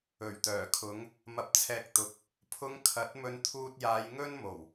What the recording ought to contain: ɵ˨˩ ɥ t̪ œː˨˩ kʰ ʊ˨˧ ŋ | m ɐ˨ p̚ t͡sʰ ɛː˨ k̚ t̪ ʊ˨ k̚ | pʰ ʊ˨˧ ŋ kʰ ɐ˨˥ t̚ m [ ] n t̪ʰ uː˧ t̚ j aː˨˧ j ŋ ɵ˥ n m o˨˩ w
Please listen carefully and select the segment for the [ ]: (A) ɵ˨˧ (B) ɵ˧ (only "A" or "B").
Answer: B